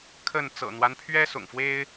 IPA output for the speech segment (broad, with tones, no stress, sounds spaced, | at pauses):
kʰ ə˥˨ n t͡s ɤ̰˨˩ n̪ w a˦ n pʰ ɥ ɛ˦ s ʊ̰˨˩ ŋ f w e˦ ɪ̯